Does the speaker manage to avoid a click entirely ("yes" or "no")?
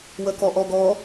yes